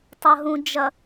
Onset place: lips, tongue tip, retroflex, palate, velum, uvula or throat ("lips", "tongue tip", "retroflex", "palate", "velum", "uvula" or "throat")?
tongue tip